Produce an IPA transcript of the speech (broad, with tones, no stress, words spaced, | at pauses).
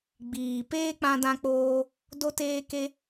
ɡ͡biː˨ peː˦k͡pã˧dã˧k͡poː˧ | do˧teː˧ke˧